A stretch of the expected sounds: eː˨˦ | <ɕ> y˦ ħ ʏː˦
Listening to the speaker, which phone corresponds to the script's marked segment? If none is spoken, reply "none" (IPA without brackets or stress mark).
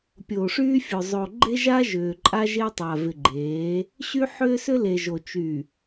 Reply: ɕ